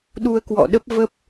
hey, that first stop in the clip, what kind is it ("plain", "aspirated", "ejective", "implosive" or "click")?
implosive